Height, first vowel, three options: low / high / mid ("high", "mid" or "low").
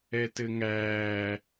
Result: mid